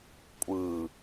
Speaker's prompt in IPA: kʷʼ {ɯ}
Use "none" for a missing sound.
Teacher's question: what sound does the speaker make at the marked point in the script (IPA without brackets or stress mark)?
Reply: ɯ